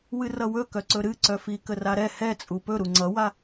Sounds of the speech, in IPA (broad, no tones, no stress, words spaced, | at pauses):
wɨrʌwɵkœ ǀɵɾɨǀœ fikəraɾɛ hɛt͡sʼu pɵ ɾuŋ͡ǀʌwa